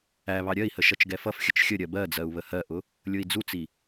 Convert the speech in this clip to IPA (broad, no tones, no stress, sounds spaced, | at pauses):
æ β ɑ ɾʲ ɜ i̯ h ə ʃ ʌ t͡ʃ ɡ ɛ f ʌ f xʲ ə t͡ʃ xʲ ə ɾʲ ɜ b ɜ d͡z ɜ u̯ β ə h ɜ ʔ ʊ | lʲ ʊ i̯ d͡z u t͡s i